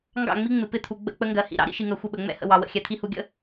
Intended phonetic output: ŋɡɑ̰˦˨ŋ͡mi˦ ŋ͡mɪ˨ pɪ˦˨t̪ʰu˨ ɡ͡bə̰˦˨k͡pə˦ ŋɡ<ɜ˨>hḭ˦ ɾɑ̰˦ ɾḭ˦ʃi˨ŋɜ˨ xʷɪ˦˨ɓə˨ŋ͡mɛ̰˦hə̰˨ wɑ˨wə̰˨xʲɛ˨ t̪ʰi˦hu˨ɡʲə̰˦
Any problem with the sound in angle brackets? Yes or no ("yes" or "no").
no